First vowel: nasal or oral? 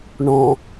nasal